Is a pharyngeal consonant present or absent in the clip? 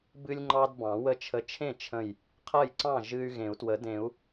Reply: absent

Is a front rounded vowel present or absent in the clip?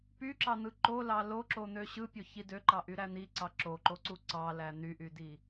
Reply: present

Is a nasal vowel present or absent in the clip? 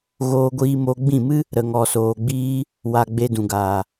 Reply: present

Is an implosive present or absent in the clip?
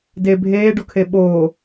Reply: present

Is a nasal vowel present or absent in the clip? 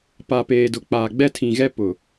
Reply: present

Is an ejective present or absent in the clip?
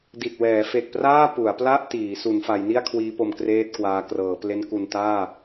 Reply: absent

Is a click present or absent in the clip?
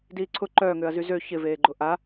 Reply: present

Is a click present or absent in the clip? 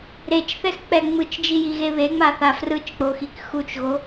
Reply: absent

